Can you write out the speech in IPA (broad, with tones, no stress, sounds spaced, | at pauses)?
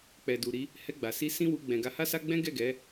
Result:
k͡p ɛ˨ d u˨ ɾ i˨˦ | h ɛ˧ ɡ͡b a˨ s i˧ s ĩ˦ w u˧ ɡ͡b ɛ̃˨ ɡ a˨˦ h a˦ s a˦ ɡ͡b ɛ̃˦ ɡ ɛ˦˨ ɡ ɛ˨˦